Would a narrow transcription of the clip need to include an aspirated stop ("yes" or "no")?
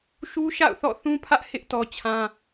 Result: yes